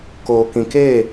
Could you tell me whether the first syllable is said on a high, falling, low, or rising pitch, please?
low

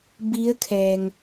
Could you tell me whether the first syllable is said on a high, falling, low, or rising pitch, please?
rising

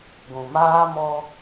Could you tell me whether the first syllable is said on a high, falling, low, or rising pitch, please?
low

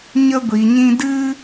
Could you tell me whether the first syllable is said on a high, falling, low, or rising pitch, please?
high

